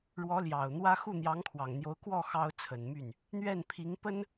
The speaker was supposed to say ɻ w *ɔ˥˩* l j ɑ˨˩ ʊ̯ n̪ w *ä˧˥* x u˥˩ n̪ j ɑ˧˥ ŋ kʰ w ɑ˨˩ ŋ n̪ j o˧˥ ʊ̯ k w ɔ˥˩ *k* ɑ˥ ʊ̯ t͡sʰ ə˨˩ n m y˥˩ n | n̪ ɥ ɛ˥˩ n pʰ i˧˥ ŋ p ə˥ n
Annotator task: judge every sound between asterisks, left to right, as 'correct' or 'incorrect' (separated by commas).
incorrect, incorrect, incorrect